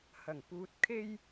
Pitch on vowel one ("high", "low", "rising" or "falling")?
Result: low